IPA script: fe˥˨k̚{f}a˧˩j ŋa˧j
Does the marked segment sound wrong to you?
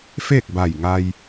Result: yes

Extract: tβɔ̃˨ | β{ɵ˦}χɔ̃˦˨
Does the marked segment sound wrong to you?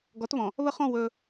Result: yes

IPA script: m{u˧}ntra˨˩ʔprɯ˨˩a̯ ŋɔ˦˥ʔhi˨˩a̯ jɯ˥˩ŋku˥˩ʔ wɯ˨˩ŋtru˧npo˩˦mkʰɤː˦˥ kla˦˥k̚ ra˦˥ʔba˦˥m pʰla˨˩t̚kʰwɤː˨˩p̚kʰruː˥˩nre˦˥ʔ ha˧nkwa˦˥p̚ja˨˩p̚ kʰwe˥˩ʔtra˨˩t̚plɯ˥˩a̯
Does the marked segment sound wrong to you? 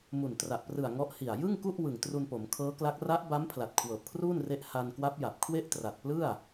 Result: yes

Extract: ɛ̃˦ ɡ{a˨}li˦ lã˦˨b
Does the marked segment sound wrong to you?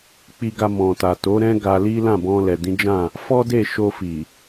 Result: yes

